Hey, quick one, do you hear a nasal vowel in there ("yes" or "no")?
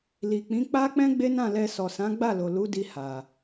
yes